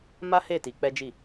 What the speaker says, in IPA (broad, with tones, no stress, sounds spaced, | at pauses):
m a˦ h e˦˨ t i˧ k͡p ɛ˦ d͡ʒ i˦˨